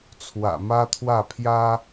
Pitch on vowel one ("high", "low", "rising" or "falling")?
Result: low